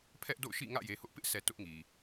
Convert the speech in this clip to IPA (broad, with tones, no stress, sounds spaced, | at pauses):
pʰ ɛ˦ ʔ d o̰˦˨ ʊ̯ ʃ ḭ˦˨ ŋ ä̰˦˨ j e˨ h ʊ˦ ʔ p ɪ˦ ʔ sʰ ɛ˨ t ʊ˦ ʔ ŋ i˨